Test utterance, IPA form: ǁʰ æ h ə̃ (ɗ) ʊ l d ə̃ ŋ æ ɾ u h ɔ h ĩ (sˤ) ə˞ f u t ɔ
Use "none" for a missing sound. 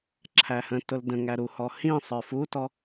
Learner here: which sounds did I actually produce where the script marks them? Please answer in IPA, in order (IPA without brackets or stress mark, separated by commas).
t, sˤ